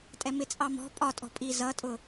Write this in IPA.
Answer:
tʼ ɛ m ɪ t͡sʼ ɑ m ɔ̤ pʼ ɒ tʼ ɔ̤ pʼ i z ʌ tʼ ʊ

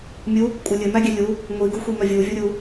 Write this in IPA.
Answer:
mʲ u | kʷʼ ɘ lʲ ɘ m æ ɡʲ ɛ lʲ u | ŋʷ i ɡ u xʷ i m œ vʲ u vʲ o ɾʲ u

